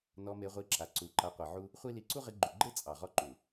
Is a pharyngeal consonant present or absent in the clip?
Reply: present